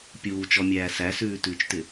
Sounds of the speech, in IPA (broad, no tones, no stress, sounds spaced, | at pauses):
pʲ uː t͡ʃ ɔ mʲ æː s æ s ʉː t ʉː t͡ʃ t ɪ